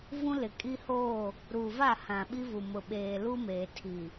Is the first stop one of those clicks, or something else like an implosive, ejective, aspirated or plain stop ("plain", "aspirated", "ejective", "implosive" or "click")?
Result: ejective